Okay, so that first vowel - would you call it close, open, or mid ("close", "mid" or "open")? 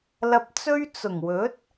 open